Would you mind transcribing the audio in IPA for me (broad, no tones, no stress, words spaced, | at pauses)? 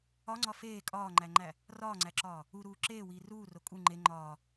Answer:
ɒŋ͡ǀɒ feː kʼɒːŋ͡ǃæŋ͡ǃæ | rɒːŋ͡ǀæǁɒː | uɾuː ǁeːwiː ruːro kʼu ŋ͡ǃe ŋ͡ǃɒː